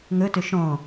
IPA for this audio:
ŋ ɵ t ʏ ʃ ɔ̃

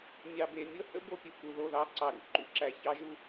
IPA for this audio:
mʲ ɑ˨ b e˨ mʲ ɤ˦ h ə̰˦ b o˨ pʲ u˨ k u˨ ð o˦˨ ð ɑ˦ ǀ ɑ˨ ɾ ṵ˧ ǃ ṵ˧ ǁ æ˨ ç ɑ˦ ʒ u˦

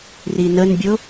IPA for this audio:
r i n ə n bʲ ʊ

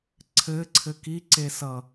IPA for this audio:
ǀʰ ɘ ǀʰ ɘ k i ǀ e s ʌ

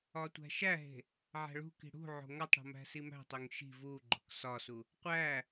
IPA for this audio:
ɒ tʷ æ̤ ʃ æ ɦ e̤ | ʕ æ̤ ɭ ṳ k i̤ ɽ ṳ ʕ o̤ ŋ ɒ tˤ ɽ o̤ m æ̤ s i m æ̤ tˤ o ŋ ʃ i̤ v u ɡ͡ǃ o̤ k s ɒ s u | qʷ æ

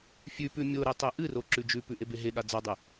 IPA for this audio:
fʲ ʉ p ʉ mʲ o ɾ e tˤ e ʔ ɨ r o ǁ ʉ d͡ʒ ʉ p ʉ ʔ e b e ɦ e ɠ a d͡z a dˤ e

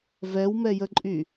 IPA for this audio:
v ɛ w m ɛ j ə ǃʼ y

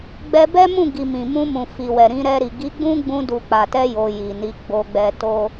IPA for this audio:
ɡ͡b ɛ˧ b ɛ˦ m ũ˦˨ ɡ i˨ m ĩ˨ m ũ˧ m ũ˨ f i˨ w ɛ˨ ɾ ĩ˧ ɾ ɛ˧ ɾ i˨ ɡ i˨˦ ɡ͡b ũ˦ ɡ͡b ũ˧ d u˨ k͡p a˨ t ɛ˧ j o˧ j i˨ n i˨˦ ɡ͡b o˧ ɡ͡b ɛ˧ t o˦

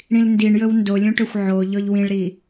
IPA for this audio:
ɽ ĩ l n d i ɳ j ɵ w n d o lʲ ũ ʈ ɵ xʷ ʕ o ʎ ɔ ʎ w ĩ ɭ ɾ i

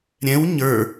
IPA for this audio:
ɾʲ ɛ̃ w ɲ ə˞

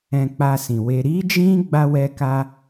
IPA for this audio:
ɛ̃˧ k͡p a˧ s ĩ˨ w e˧ ɾ i˦ d͡ʒ ĩ˦ ɡ͡b a˦ w ɛ˦ k a˦

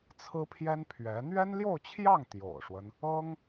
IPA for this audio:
t͡sʰ ɹ̩˥ pʰ j ɛ˥ n pʰ ɥ ɛ˧˥ n̪ ɥ ɛ˥ n l j o˥˧ ʊ̯ t͡ɕʰ j ɑ˥˩ ŋ t̪ j o̰˨˩ ʊ̯ ʂ w ə˦ n | ɤ˥ ŋ

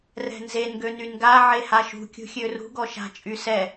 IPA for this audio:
r ɛ̤ n z e n ɡ ø n y n ɡ a ʕ e h a ʃ ṳ kʲ ṳ xʲ ø r ṳ ɡ ɔ ʃ a̤ t͡ʃʼ y s ɛ

